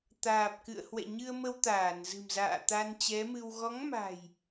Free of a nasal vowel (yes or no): yes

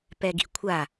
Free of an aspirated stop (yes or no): no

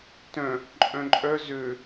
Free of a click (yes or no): no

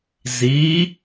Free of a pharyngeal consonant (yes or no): yes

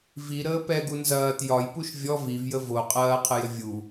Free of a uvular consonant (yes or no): no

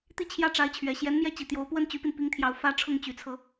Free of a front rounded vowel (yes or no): no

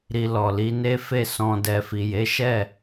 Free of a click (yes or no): yes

